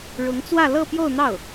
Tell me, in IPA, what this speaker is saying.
ɻ ʊ˧˥ ŋ t͡s w ä˥˧ l ɤ˥˧ p j o˥˧ ʊ̯ n̪ ɑ˥˩ ʊ̯

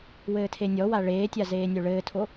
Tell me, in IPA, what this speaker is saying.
w ɘː tʰ e nʲ ɔ w a ɭ eː tʲ a z eː nʲ o ɭ ɘː tʰ o

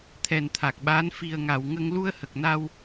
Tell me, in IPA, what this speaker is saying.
t̪ʰ ɛ˨˩ n t̪ʰ a˨˩ k̚ ɓ aː˧˥ n f i˨˩ ə̯ ŋ a˨˩˨ w ŋ ə˧ ŋ l u˧ ə̯ h ə˨˩ k̚ n a˧ w

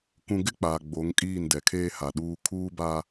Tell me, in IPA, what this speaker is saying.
k ũ˨ ɡ ɪ˦ k͡p aː˨ ɡ͡b o˨˦ ŋ kʼ iː˦˨ n d ɛ˨ kʰ eː˦ h a˨ ɗ uː˦ kʰ uː˦ b a˦

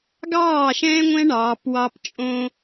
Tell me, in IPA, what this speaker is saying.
ɡ ɑː˦˨ ʃ ɛ̃ː˦ ŋʷ ɛ̃˦ ɳ ɑː˨˦ p w ɑ˦ p t͡ʃʼ õ˦

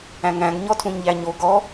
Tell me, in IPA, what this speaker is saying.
æ̃ ŋ æ̃ ɡ ɲ ɔ tʰ ũ ɲ ʎ æ ɲ o ɡ ɔ

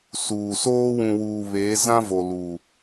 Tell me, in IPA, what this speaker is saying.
s uː˨ s oː˦ w ũ˨ w uː˨ β eː˨˦ z ã˦ v o˨ l u˨

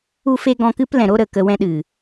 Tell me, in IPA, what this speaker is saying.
u˧ f e˧ ɡ ɔ̃˧ k ɨ˦ p l ɛ̃˨ ɾ o˦ ɾ ə˨ k ə˧ w ɛ̃˦ ɗ ɨ˨

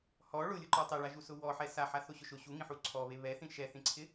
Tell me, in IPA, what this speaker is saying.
h ɔ ɭ ʊ lʲ ʊ ǃ ɔ tˤ ɛ ɭ a ʒ u s ʊ w ɔ ħ ɛ s a ħ a θ o ɕ ʊ ʃ ʊ ɕ u ŋ ĩ ħ u ǀʰ ɔ β e β ɛ θ ĩ ʃ ɛ θ ĩ ǀʰ ɪ

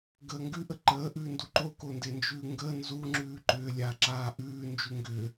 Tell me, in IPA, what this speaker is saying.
ɡ əː ŋ ɡ ʉ ʔ ə ǃ əː ʔ ʉː n d u ǃ o k o n d e n d͡ʒ ʉː ŋ ɡ ə n z u ŋ͡ǁ ʉː ǃ ʏː lʲ a ǁ aː ʔ ʉː n d͡ʒ ʉ ŋ ɡ ʏː

